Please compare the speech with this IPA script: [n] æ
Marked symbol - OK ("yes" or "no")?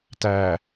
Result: no